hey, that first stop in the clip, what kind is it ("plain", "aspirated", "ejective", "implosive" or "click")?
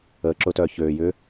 click